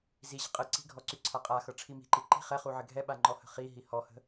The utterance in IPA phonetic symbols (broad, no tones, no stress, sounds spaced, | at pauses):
z i ʑ ə̤ qʼ ə ǀ i̤ ɡʱ ɔ ǀ y ǀʰ a qʼ a x ɤ ʈ͡ʂʰ i m i̤ ǃ i ǃ i̤ χ ɛ χ u ʕ ɘ ɡʱ ɛ ɓ a ŋ͡ǃ ɔ h ə̤ χ i ɦ i h ɔ h ə̤